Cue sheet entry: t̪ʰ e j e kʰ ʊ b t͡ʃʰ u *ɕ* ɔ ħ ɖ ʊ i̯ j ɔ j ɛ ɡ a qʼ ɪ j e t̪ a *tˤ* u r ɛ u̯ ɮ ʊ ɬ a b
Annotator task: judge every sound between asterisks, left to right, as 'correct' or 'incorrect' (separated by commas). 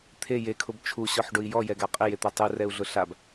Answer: correct, correct